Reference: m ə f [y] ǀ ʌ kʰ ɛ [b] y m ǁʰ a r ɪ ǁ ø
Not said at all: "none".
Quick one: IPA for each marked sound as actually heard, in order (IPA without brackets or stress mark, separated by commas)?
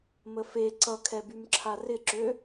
e, b